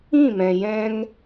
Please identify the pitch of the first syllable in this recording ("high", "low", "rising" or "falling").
falling